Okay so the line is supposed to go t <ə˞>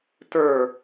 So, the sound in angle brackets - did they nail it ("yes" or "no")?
yes